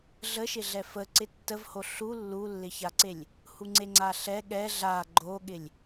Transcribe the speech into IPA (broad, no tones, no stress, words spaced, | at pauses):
ɮəʃɪɮɛ fəǀɪ tːəvho ɬu lːulːɪçaǀelʲ | huŋ͡ǀeŋ͡ǀaɬɛ ɠɛ ɮa ɡ͡ǃoɠɪlʲ